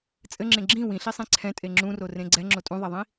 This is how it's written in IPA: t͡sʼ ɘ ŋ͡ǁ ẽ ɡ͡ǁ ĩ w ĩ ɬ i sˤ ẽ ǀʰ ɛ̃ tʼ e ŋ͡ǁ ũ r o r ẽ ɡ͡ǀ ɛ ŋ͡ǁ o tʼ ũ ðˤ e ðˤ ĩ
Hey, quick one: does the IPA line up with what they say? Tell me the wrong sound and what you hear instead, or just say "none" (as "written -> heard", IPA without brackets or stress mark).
none